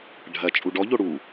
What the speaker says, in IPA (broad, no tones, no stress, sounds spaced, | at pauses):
ɖʱ ɐ t͡ʃʼ u ɖ ɔ ʎ o ɽ u